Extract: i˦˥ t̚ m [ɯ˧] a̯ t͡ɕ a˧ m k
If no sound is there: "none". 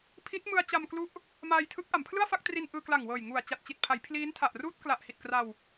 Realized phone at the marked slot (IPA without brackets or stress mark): ɯ˧